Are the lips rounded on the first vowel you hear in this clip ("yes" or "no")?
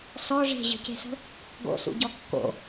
yes